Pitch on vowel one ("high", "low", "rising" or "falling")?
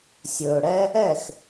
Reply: low